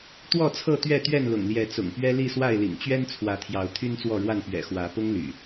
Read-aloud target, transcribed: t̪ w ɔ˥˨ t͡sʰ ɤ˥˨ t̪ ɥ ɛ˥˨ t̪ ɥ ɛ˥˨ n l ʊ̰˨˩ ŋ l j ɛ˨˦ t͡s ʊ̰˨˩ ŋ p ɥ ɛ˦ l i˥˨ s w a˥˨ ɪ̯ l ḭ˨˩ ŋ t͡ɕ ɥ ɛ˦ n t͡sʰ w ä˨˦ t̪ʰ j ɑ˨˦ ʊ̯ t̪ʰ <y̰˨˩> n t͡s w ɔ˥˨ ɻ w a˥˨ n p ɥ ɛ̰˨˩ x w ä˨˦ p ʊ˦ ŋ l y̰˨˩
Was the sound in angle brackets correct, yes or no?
no